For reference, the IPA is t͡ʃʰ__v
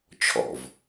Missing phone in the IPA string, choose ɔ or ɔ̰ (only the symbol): ɔ̰